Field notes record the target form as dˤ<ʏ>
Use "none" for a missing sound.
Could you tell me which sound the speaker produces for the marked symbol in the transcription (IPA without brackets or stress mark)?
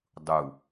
u